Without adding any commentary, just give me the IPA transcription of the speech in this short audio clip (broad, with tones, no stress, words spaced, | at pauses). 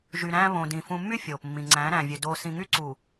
ʒy˨ɾæ̃ː˦ βõ˨dĩ˨ fũ˨mːy˦ fʲoː˨pmːĩ˨ ŋ͡ǀæ̃ː˨˦ɾæ̃ː˨vʲø˨ doː˨ sĩ˨ŋy˦ǀu˨